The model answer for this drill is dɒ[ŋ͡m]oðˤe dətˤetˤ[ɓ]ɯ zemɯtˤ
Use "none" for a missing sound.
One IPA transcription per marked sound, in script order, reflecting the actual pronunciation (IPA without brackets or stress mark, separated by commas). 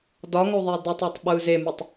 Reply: ŋ, ɓ